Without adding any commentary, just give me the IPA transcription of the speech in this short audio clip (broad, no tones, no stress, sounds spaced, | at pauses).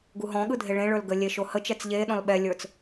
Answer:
ɡ u ɦ ɔ̃ ɠ ɯ dʱ e ɭ ẽ ɭ ə˞ l ɡ ə lʲ e ʃ o h ə t͡ʃ ɛ t͡s ʎ e ɗ ɔ̃ l ɓ ɛ lʲ ə˞ t͡s